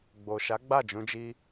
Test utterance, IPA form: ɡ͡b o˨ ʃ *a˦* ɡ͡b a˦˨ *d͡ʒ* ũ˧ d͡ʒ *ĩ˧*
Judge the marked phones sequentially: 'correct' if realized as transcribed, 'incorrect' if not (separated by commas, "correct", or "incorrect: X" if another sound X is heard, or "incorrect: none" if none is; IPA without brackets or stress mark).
incorrect: a˨˦, correct, incorrect: i˧